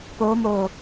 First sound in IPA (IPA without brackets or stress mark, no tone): p